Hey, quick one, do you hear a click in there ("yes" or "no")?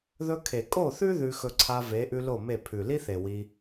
yes